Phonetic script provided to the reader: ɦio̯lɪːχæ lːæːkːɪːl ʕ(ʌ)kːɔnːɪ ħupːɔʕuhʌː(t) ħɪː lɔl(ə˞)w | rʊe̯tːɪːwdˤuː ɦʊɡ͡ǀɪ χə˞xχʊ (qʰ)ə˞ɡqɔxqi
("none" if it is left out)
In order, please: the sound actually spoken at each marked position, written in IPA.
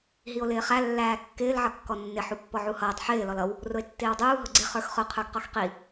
ʌ, tˤ, ʌ, qʰ

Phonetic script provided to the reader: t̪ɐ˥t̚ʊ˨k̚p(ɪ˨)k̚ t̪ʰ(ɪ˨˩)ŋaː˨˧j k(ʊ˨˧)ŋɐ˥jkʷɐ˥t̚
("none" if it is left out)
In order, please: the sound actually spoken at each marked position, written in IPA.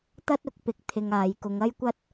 ɪ˧, ɪ˧, ʊ˨˧

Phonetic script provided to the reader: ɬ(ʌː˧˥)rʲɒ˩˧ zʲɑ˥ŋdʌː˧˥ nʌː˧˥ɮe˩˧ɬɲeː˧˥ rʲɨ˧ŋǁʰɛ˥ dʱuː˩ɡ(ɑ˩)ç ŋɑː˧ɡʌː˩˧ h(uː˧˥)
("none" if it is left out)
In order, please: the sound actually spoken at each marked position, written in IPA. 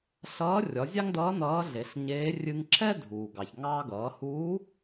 ʌː˧˥, ɑ˩, uː˧˥

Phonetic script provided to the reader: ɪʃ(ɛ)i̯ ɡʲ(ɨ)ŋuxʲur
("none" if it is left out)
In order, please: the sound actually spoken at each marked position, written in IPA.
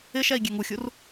ɛ, ɛ

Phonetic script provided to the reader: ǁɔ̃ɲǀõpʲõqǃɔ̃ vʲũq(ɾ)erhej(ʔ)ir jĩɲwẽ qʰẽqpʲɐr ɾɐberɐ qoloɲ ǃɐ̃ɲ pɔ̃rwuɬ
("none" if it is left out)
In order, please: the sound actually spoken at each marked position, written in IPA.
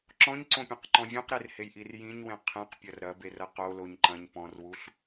ɾ, ʔ

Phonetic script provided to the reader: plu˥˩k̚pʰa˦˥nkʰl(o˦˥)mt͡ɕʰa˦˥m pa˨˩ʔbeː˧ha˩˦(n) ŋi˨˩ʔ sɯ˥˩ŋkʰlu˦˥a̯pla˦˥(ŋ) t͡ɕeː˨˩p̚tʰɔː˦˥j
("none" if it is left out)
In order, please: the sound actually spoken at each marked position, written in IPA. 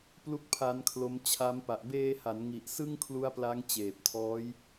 o˦˥, n, ŋ

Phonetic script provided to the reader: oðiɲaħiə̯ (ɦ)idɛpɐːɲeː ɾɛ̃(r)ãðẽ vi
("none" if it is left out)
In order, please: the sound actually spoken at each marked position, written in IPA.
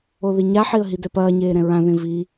ɦ, ɹ

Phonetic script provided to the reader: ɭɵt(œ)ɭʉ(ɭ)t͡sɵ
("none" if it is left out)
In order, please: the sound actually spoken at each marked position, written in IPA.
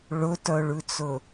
œ, none

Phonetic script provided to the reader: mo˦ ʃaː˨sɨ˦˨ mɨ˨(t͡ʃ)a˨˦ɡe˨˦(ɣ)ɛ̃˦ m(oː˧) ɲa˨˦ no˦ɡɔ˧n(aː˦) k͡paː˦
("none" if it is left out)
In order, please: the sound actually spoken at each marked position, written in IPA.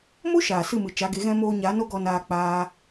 t͡ʃ, ɣ, oː˧, aː˧

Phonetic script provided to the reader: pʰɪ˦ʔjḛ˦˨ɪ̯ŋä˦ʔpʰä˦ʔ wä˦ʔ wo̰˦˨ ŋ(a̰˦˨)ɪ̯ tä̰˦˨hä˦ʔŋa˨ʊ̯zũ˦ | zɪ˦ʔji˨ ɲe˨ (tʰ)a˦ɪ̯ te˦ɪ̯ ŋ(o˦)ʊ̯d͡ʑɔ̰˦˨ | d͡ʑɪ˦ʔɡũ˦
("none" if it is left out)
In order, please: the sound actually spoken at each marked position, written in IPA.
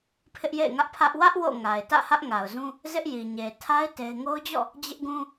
a˨, tʰ, o˦

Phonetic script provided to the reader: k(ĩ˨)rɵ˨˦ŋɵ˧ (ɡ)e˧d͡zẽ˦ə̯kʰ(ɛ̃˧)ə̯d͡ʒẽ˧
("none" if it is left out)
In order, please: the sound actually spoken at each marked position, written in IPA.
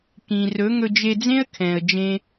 ĩ˨, d͡ʒ, ɛ̃˨

